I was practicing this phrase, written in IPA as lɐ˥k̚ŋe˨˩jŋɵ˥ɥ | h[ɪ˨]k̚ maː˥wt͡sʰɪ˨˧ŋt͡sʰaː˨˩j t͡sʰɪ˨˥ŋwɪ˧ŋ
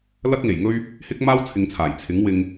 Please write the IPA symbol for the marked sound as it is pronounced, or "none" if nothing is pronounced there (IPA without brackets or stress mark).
ɪ˥